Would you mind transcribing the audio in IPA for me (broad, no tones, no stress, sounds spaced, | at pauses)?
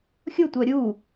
xʲ ʊ tʷ œ ɾʲ u